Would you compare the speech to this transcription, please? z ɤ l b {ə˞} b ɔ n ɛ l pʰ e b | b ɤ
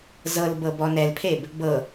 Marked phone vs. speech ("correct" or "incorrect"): incorrect